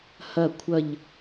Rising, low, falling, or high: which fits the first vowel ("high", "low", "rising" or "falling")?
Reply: falling